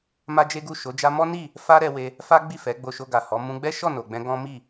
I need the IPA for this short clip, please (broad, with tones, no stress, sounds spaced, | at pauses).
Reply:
m a˦ d͡ʒ e˦ ɡ u˦˨ ʃ o˨˦ d͡ʒ a˦ m ɔ˦ n i˦˨ | f a˦ ɾ ɛ˧ w e˧ | f a˦ ɡ͡b i˦˨ f ɛ˨˦ ɡ͡b o˧ ʃ o˧ ɡ a˨ h ɔ˨˦ m ũ˧ ɡ͡b ɛ˦ ʃ ɔ˦˨ n o˨ ɡ͡b ɛ̃˧ ɡ ɔ̃˦ m i˦˨